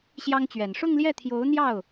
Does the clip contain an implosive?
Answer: no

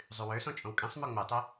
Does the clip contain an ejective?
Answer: yes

